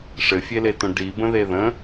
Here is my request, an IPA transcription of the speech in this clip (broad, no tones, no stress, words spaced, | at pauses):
ʂɘfʲeletõ ɖibə̃ðe ðə̃